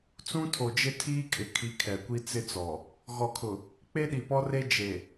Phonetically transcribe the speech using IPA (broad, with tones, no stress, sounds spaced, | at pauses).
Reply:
t͡s ũ˦ tʰ o˨ d͡ʒ ɪ˦ tʰ iː˦ kʼ ɪ˨ kʰ i˨˦ kʰ ɛ˨ kʷ i˦ t͡s ɪ˦ t͡s ɔ˨ | ɣ ɔ˨ kʰ ʊ˨ | k͡p e˦ ɗ i˨ p ɔ˦ r e˦ d͡ʒ e˨